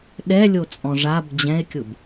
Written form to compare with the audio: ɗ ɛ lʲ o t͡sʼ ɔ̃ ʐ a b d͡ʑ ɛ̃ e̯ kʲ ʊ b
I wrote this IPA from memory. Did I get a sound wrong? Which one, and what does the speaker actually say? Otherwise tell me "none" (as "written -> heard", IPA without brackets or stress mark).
none